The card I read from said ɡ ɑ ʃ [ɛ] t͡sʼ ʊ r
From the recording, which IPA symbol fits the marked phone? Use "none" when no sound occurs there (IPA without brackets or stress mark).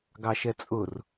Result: ɛ